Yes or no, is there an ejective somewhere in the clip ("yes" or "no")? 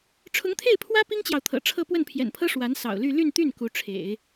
no